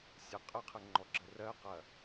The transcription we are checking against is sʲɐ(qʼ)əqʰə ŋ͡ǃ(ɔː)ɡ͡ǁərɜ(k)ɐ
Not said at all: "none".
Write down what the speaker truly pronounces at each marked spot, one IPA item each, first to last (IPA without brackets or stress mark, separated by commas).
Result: qʼ, ɔ, q